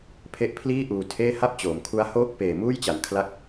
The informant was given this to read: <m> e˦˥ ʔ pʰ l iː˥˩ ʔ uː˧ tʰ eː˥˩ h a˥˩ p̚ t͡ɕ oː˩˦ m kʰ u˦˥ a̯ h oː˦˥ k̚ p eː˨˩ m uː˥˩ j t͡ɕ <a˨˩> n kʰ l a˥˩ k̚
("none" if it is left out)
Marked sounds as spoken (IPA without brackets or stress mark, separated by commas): pʰ, a˨˩